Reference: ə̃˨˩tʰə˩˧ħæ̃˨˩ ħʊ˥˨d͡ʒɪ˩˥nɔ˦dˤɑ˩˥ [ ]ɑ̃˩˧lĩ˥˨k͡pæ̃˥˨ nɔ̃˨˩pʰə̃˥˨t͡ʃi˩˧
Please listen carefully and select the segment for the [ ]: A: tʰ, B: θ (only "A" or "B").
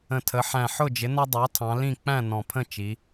A